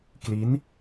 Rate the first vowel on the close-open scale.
close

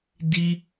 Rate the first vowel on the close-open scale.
close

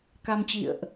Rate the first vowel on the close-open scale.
open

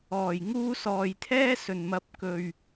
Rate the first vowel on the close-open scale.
mid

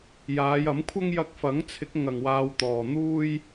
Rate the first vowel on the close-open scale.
open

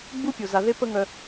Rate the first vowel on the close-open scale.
close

